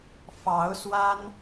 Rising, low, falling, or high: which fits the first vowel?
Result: rising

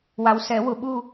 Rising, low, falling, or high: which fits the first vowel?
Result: low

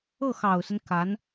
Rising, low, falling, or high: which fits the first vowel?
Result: falling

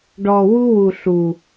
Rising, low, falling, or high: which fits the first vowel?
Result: low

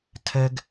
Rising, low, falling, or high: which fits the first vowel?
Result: high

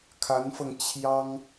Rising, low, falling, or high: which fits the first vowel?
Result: rising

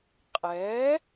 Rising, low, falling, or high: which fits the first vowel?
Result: rising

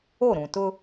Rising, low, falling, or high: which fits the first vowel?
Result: falling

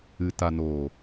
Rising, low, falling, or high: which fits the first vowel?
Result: low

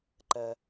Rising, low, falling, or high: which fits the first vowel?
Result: high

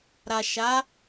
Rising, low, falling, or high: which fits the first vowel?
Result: low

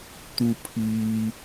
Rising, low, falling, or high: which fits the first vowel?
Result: low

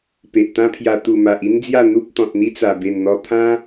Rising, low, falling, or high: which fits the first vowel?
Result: low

